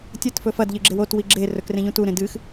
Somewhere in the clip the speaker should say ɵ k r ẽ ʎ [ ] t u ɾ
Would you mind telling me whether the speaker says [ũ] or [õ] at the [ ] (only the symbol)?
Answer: ũ